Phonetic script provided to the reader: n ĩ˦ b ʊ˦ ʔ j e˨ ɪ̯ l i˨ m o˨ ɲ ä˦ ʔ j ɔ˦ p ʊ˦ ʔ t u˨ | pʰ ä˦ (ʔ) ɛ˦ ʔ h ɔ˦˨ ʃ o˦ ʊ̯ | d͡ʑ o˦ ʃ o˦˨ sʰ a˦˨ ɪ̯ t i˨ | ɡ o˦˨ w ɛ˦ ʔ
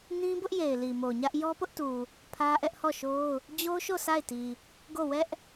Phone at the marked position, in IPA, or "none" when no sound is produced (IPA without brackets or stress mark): ʔ